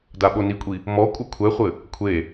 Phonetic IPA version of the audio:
d a ɓ o n i kʷʼ i | m ɔ kʷʼ ɘ kʷʰ ɛ χʷ ɘ | kʷʰ e

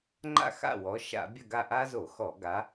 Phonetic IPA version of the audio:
ŋ͡ǃ a̰˦˨ x a̰˦˨ w ɔ˨˦ ʃ a̰˧˩˧ bʲ ɐ˦˨ ɡ a˦˨ ʔ a˦ z o˧˩˧ x ɔ˧˩˧ ɡ a˨˦

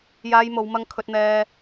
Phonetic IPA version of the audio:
j aː˧ j m o˨˧ w m ɐ˧ ŋ kʰ ɵ˧ t̚ n̪ ɛː˧

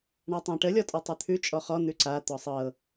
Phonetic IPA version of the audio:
ɳ a tˤ æ̃ ʈ ə lʲ ɔ tʼ ɔ tˤ ʉ t̪ʰ ʉ t͡ʃʼ ɔ χ ɔ n̪ ʉ ǀ a t̪ ɔ sˤ ɤ

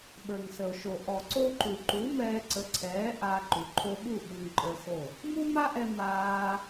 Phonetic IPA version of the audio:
ɓ ə˞˨ ŋ s ə˨ o̯ ʃ o˨ ʔ ɔ˨ ǀ o˦ ǃ u˨ ǃ u˨˦ m ɛː˧ ǀ ə˨˦ ǀʰ ɛː˨˦ ʔ a˧ ǃ u˨ ǃʰ o˧ ɓ u˦˨ ɓ u˧ ŋ ǃʼ ə˞˧ x o˦˨ | m u˦ m a˦ ʔ ɛ˧ m aː˧

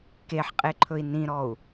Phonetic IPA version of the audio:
k e ħ qʼ e ǃʰ ɵ i̯ n ĩ ɾ ɔ u̯

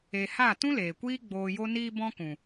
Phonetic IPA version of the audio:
e˨ h a˦˨ t ũ˦ l eː˨ kʷ iː˦ ɡ͡b oː˧ j o˦ n iː˧ b ɔ̃˧ k ũ˨

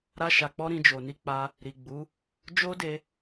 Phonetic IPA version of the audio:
ɾ a˧ ʃ a˨ k͡p ɔ˧ ɾ ĩ˧ d͡ʒ o˨ n i˧ k͡p a˧ | ɾ i˨ ɡ͡b u˨˦ | d͡ʒ o˦ d e˧

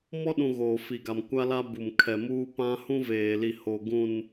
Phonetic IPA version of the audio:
m ɔ˦ ɗ ũ˨ ɣ oː˨ f i˨ ɡ a˨ m kʷ a˦ l a˦ b u˨ m kʰ ɛ˨ m uː˦ p ã˦ h ũ˦ v eː˨ l i˨ h o˨ ɡ ũ˨ n

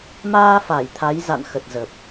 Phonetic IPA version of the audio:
m aː˧ f a˧˩ j t̪ʰ a˨˦ j z a̰˧˨ n x ə˨˩ t̚ z ə˨˩ p̚

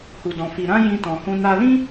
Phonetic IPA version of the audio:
h u˧ d ɔ̃˧ f i˧ ɾ ã˦ j ĩ˦ t ɔ̃˧ h ũ˦ n a˧ l ĩ˦

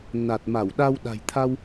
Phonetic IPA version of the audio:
n a˨˩ t̚ m a˧˩ w ɗ a˧ w ɗ a̤˨˩ j t̪ʰ a˧ w

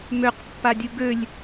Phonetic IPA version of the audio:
m ø q pː a dʲ u ɡ ø lʲ

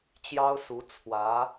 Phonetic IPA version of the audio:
t͡ɕ j ɑ˥ ʊ̯ s u˧˥ t͡sʰ w ä˧˥

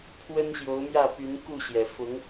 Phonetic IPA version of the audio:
pʰ w ə˦ n ɕ j o˨˦ ʊ̯ m j ä˥˨ p y˨˦ n k u˥˨ ɕ j ɛ˩ f ʊ˨˦ ŋ

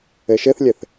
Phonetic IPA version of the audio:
ɘ ʃ ɘ θ lʲ ɘ θ

